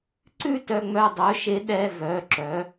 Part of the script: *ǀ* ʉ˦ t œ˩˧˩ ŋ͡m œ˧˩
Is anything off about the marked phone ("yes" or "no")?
no